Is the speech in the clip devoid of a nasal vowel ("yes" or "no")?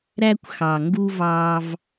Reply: yes